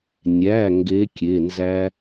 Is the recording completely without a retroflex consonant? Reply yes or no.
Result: yes